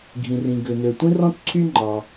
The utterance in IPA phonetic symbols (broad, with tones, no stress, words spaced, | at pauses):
ɡʱĩ˩rĩ˩ ɡø˩nø˩tʷĩ˥ rɔ̃˥tǀʰy˥ŋ͡ǃɑ˩